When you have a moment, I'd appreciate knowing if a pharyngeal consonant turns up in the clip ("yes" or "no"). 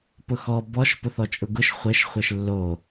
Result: no